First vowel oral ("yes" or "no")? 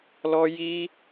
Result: yes